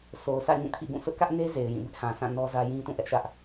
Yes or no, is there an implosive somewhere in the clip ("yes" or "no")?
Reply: no